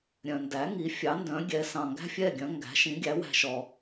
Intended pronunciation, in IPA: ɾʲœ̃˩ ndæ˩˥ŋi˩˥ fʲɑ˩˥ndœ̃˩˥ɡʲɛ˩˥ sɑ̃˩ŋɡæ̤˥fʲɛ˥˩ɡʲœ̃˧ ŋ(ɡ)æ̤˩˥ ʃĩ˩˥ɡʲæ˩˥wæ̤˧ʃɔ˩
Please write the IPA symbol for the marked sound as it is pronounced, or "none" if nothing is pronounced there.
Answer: ɡ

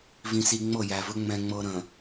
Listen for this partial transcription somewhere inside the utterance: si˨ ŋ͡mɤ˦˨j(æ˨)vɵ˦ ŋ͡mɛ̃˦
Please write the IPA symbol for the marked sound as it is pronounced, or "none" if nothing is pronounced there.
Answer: æ˨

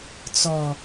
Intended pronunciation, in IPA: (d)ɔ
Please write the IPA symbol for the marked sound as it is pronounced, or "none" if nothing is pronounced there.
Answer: t͡s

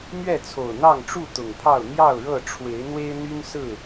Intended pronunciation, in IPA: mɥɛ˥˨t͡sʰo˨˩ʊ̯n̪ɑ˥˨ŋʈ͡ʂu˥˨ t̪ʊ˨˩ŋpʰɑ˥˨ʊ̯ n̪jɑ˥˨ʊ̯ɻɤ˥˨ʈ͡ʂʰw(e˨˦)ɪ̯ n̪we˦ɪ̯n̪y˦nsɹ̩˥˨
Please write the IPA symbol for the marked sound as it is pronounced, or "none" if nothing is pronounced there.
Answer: e˨˦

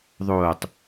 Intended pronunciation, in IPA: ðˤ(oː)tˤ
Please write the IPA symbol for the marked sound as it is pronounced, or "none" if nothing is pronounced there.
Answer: oː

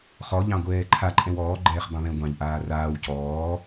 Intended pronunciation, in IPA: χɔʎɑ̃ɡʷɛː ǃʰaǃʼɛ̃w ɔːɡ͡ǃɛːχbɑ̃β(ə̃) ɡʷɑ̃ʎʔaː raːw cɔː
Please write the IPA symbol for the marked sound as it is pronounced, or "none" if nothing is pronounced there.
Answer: ɛ̃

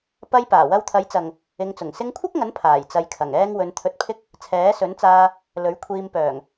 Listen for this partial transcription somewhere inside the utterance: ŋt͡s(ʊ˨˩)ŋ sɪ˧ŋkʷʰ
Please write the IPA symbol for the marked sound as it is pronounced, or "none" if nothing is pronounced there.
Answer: ʊ˨˩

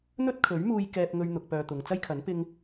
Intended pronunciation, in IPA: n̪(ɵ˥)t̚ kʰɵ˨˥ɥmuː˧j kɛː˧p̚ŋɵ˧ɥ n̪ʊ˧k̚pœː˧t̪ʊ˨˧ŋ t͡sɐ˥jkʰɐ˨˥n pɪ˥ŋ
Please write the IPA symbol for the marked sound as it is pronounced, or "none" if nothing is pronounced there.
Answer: ɵ˥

